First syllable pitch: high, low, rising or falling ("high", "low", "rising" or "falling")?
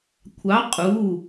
rising